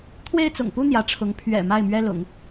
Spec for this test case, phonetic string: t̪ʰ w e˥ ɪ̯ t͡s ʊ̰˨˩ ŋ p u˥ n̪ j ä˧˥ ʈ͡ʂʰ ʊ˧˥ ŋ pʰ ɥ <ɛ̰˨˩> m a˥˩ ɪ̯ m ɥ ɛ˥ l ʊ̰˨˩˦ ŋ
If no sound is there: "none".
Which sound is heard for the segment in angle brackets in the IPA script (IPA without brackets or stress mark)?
ɛ̰˨˩